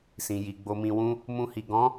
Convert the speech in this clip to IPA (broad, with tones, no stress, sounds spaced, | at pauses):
s ĩ˨ j i˨ ɡ͡b o˧ m ĩ˧ w ũ˦ | m ũ˧ h i˨ ɡ ɔ̃˨˦